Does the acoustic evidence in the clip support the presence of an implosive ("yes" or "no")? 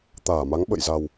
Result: yes